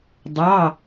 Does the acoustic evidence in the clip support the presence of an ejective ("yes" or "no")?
no